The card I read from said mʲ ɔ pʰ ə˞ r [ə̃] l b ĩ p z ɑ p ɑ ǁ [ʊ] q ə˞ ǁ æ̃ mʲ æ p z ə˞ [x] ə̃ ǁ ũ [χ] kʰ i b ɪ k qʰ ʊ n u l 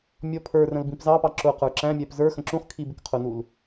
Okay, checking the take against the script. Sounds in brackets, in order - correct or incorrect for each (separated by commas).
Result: correct, correct, correct, correct